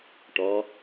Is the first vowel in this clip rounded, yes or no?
yes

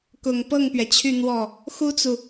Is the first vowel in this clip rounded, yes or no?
yes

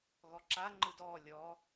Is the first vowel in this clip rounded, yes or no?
yes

